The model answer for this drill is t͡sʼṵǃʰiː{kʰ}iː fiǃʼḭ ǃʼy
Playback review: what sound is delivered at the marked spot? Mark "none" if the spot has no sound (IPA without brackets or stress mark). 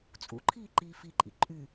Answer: ǃ